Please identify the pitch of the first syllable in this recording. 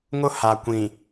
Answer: high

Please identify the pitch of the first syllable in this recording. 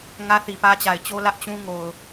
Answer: high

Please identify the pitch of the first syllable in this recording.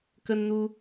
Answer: high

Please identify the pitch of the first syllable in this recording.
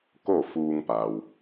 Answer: falling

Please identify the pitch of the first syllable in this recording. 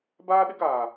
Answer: high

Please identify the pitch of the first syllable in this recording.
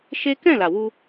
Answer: high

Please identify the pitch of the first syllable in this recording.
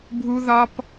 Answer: high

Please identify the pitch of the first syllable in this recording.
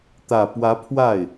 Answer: low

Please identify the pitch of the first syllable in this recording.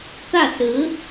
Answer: falling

